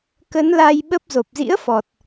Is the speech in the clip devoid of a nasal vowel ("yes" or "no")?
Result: yes